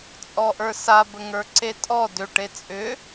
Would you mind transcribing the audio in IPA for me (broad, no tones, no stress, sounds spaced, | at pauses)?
t͡sʼ ɔ ʔ ə˞ s a b ə ŋ ə˞ ǀ e tʼ ɔ d ʏ ʈ e t͡sʼ ʏ